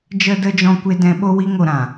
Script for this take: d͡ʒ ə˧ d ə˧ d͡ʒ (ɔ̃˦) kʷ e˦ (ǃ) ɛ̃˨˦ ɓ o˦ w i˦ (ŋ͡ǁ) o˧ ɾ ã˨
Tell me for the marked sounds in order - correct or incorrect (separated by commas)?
correct, incorrect, incorrect